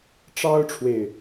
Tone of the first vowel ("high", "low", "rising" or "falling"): high